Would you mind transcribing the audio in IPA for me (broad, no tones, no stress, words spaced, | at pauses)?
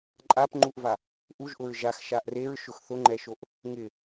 ǃʼapŋ͡ǃuʔva | ʔuʒʔʊɹ ʒaxʃaʔ reɹʃʊx θʊŋ͡ǃɛʃoʔ | ŋɪ